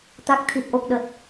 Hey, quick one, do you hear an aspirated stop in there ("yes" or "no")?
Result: yes